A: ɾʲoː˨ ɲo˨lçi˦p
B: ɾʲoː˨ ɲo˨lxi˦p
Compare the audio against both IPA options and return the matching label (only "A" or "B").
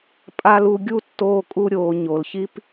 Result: A